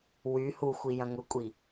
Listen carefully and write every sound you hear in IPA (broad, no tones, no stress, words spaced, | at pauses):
wy huxʷi jɐ̃ŋʊkʷʼi